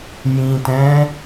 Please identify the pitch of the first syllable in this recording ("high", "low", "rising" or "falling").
low